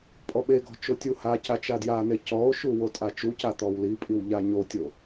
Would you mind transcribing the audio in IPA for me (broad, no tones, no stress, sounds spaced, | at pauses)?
pʼ ɔ ɓ e ɡ ɔ̤ t͡ʃ o tʲ u h a c a t͡ʃ a d j a n e c ɔ o̯ ʃ u w o tʼ a t͡ʃ u c a t̪ ɔ w l i pʼ i w ʎ a ɲ o tʲ o